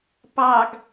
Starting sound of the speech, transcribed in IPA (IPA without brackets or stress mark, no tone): p